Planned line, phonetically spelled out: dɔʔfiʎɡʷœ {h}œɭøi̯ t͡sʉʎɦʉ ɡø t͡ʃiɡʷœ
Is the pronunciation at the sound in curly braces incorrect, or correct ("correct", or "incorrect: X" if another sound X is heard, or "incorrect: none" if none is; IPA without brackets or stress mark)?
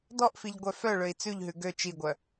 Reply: incorrect: f